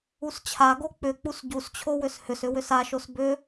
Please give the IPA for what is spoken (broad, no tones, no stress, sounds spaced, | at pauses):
u s t͡ɕʰ a ɡ o k͡p ʏ k͡p u s ɟ u s t͡ɕʰ o w ʏ s h ʏ s ʏ w ʏ s a ʃ o s b ʏ